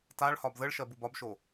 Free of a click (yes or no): yes